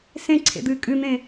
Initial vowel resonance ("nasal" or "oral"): nasal